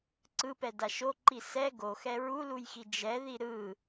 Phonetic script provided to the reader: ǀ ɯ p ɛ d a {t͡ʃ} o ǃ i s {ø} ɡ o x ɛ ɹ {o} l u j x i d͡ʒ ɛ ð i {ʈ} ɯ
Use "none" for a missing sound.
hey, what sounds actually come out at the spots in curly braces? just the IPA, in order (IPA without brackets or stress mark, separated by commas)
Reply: ʃ, ɛ, u, ɾ